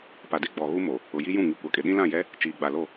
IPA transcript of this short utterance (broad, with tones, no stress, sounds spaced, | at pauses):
p a˨ d e˦ ɡ͡b ɔ˨ ɣ u˦ m o˨ | ʊ˨ j i˦ j ũ˦˨ ŋ i˨ kʷ a˨ kʼ ɪ˨ ɗ ĩ˦ l ã˦˨ j ɛ˦ | t͡ʃ iː˨ ɡ͡b a˨ l o˦˨